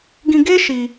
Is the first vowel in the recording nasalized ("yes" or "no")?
yes